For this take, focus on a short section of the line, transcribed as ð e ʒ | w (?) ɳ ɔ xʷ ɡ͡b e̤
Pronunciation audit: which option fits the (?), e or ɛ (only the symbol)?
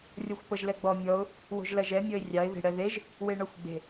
e